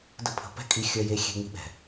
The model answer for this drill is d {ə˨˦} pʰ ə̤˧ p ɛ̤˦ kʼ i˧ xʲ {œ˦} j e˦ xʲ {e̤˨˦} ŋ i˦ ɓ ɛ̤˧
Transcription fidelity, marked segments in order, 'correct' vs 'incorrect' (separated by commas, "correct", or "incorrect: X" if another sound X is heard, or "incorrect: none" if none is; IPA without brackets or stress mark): incorrect: ə˦, correct, incorrect: e̤˦